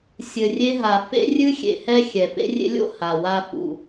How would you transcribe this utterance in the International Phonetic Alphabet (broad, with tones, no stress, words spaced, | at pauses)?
sʲɘ˨rʲe˧ɦa˨ fḛ˦rʲɨ˦ xʲḛ˨hɛ˧ xʲɛ˨fḛ˦rʲḛ˦lʲo̰˦ ha˨wa˧ fṵ˨